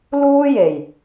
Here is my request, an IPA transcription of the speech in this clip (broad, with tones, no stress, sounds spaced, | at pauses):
l uː˥ j e˨˩ j